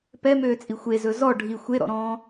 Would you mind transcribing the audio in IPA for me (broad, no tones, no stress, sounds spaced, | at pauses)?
p ɛ m øː t͡sʼ i xʷ e z ɵ z ɔ ɖʱ i xʷ e ɾ ɔ̰ ɾ ɔ̃ː